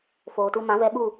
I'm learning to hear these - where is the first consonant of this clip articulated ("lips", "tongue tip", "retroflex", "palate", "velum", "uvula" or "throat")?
lips